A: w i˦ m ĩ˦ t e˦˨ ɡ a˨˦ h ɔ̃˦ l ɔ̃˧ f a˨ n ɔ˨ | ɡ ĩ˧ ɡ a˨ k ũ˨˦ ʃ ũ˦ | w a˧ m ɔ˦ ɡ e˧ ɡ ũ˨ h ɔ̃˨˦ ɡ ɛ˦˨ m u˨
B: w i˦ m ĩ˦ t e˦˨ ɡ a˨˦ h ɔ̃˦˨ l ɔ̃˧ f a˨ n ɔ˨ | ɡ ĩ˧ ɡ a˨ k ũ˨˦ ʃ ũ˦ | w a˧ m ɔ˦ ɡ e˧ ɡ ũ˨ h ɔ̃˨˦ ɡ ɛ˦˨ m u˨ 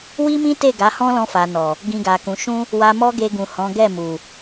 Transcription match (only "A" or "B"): A